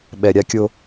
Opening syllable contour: low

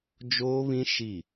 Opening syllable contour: high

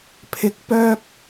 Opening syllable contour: rising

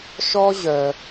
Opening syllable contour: high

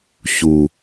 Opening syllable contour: low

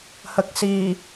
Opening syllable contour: low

